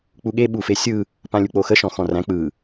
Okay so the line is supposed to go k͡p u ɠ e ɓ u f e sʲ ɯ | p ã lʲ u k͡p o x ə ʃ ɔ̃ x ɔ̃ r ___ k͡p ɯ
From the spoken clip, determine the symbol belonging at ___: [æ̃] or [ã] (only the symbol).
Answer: æ̃